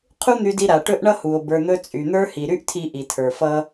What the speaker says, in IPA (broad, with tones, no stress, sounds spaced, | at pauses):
qʰ u˥ n̪ y˧ d i˧ ɾ a˩ ʈ ɵ˥ ʔ ɳ ʌ˥ h u˩ o̯ b ə˞˧ n̪ ɵ˥ t͡sʼ y˩ n̪ ə˞˥ h i˩ ɾ y˥ ʔ tʰ i˧ ʔ i˩ tʰ ə˞˩ f ʌ˥